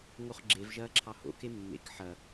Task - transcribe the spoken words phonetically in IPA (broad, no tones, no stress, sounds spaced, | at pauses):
ŋ o χ ɡ͡ǁ e v ʒ ɐː ǁʰ ɑ h o̰ k e mː ḛ k ħ ɐ